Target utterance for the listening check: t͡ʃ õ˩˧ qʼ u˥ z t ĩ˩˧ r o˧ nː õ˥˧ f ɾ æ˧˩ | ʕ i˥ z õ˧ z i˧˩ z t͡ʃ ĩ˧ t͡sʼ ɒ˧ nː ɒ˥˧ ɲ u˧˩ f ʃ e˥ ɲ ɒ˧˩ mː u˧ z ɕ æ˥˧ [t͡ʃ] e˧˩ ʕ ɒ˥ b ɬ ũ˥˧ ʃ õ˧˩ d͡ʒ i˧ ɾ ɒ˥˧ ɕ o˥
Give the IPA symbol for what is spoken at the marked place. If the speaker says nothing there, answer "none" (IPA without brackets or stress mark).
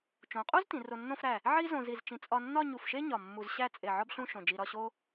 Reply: t͡sʼ